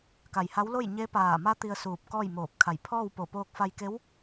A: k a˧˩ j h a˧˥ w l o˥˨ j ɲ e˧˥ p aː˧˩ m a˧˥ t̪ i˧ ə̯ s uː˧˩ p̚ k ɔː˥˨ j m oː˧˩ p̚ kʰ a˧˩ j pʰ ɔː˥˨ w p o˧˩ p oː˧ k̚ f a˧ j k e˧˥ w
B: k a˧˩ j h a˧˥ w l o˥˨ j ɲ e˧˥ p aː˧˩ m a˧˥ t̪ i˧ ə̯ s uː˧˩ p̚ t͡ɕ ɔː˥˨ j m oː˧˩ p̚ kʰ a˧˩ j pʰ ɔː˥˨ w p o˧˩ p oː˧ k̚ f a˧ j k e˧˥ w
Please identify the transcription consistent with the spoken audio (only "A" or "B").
A